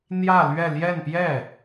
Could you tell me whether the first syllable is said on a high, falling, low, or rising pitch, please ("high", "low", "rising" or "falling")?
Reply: falling